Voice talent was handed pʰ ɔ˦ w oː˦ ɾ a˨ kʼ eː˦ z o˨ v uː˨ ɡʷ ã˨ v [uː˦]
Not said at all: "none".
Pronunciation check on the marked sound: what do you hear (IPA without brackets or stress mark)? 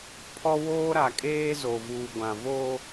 oː˦